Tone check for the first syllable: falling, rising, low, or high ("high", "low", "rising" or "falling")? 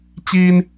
high